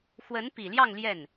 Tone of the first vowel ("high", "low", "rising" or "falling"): rising